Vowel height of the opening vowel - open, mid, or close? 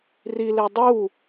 close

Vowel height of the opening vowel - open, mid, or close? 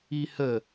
close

